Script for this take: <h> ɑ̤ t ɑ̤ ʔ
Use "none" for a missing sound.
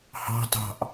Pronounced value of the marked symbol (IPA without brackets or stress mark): h